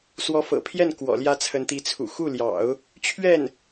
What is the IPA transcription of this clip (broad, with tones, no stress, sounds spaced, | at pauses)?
s w ɔ˧˥ f ɤ̰˨˩ pʰ j ɛ˥˩ n k w ɔ̰˨˩ l j ä˥ t͡sʰ ə˧˥ n t̪ i˧˥ t͡sʰ ṵ˨˩ x u˥˩ l j ɑ̰˨˩˦ ʊ̯ | t͡ɕʰ ɥ ɛ˥˩ n